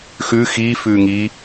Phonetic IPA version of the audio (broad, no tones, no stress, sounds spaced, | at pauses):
x ʉ x iː f ʉː ŋ i